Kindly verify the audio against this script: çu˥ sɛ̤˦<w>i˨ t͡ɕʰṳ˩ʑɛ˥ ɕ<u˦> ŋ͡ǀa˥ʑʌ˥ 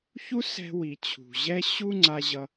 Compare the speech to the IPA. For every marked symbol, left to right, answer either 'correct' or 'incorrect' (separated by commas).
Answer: correct, correct